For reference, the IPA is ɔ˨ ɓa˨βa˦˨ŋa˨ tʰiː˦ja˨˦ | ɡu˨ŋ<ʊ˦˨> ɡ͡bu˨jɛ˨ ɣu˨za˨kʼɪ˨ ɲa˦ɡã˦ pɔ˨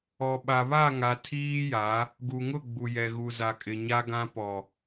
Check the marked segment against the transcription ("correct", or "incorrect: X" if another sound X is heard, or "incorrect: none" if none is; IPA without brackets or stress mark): correct